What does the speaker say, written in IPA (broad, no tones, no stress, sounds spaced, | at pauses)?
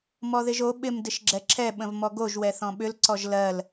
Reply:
m ɔ ð ɪ ʒ o ɓ ɪ m d ɪ ʃ ɡ͡ǁ ɛ ǁʰ ɛ ɓ ə̃ v m ɔ ɡ o ʒ w ɛ θ ɔ̃ ɓ ʏ l ǀ ɔ ʒ l ɜ l